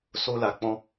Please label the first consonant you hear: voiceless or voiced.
voiceless